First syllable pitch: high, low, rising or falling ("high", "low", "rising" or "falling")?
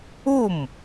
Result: falling